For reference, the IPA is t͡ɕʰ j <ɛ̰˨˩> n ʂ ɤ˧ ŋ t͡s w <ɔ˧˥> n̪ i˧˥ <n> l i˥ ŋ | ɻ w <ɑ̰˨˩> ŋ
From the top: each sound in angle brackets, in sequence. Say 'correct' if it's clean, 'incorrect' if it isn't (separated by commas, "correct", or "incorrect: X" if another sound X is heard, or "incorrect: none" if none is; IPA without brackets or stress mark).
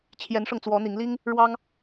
incorrect: ɛ˧˥, correct, incorrect: ŋ, incorrect: ɑ˥